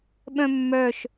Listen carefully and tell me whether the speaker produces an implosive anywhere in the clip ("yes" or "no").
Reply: yes